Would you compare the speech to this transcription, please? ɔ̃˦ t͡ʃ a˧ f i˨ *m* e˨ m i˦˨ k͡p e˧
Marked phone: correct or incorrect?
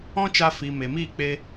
correct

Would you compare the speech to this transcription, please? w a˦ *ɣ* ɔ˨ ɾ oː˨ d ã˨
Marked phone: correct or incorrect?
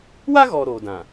correct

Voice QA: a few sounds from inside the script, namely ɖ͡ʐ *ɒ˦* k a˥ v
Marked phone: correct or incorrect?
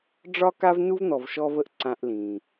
incorrect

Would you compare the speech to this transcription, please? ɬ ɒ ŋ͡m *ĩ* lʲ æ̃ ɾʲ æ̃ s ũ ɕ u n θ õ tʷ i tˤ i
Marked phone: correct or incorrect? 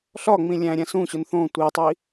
correct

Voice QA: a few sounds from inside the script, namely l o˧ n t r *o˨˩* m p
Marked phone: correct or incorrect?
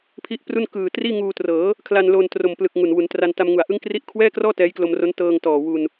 correct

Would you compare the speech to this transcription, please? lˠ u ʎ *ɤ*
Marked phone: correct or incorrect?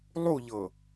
correct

